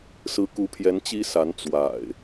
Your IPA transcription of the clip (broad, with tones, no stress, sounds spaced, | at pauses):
s ɹ̩˨˦ k u˨˦ pʰ j ɛ˨˦ n t͡ɕ i˦ s a˨˦ n t͡s w a̰˨˩ ɪ̯